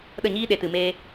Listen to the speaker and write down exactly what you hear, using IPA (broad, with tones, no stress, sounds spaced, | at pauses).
ɗ ə˦˨ ɲ iː˦ ɗ e˨ t ɨ˨ m eː˧